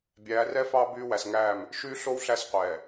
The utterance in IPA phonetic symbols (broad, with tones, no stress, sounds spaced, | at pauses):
bʲ æː˨˦ r ɛ˦ f ɑː˦ b yː˦ w æ˨ s ŋ æː˦˨ m | ʃ yː˦ ɬ o˦ w ɬ æ˦ s qʷ ɛː˨